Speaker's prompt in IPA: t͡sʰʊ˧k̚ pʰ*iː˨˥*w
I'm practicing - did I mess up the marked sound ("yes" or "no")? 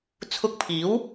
no